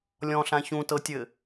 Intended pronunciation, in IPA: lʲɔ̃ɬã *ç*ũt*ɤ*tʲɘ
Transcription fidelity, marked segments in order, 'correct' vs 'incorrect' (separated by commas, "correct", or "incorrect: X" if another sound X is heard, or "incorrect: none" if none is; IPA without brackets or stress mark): correct, correct